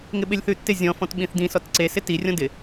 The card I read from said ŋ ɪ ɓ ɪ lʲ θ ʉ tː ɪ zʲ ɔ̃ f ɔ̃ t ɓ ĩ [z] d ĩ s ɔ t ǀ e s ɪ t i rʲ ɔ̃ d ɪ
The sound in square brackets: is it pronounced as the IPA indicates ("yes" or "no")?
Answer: no